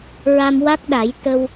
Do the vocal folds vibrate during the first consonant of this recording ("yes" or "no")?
yes